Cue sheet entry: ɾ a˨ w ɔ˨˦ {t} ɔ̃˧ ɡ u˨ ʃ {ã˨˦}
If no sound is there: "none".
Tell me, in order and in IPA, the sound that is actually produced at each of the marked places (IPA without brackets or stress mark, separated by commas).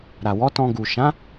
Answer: t, ã˨˦